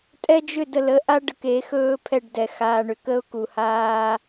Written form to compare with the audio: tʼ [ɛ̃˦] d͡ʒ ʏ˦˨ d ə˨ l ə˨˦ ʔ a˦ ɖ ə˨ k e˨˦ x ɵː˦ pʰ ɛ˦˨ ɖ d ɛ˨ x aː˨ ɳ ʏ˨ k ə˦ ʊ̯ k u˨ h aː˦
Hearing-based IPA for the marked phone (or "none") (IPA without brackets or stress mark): ɛ˦